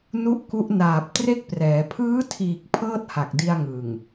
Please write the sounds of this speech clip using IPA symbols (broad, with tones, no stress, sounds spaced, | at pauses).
n u˥˩ ʔ k u˦˥ ʔ n aː˨˩ p̚ t r e˥˩ k̚ p r ɛː˩˦ pʰ ɯː˦˥ tʰ iː˨˩ k̚ pʰ ɤː˥˩ t̚ h a˨˩ k̚ d i˧ a̯ ŋ ɯ˨˩ ŋ